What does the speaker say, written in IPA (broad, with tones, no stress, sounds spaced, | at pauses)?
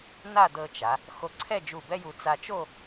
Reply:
n̪ a˥˧ d̪ ɤ˧ t͡ʃ a˩˧ | x o˧ ǀʰ ɛ˥˧ d͡ʒ u˧˩ b ɛ˥ j u˧ t͡s a˧ t͡ʃ o˥˧